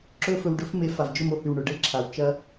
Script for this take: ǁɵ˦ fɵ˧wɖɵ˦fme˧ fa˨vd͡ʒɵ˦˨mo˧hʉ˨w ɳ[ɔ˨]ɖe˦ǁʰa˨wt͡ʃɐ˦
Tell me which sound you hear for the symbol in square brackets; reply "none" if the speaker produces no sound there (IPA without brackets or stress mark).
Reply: ɵ˨